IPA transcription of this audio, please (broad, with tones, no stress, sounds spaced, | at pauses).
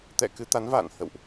t̪ ɛ̰˧˨ k ɨ˧ t̪ a˨˦ n v a̰ː˧˨ n h ə̰˧˨ w ʔ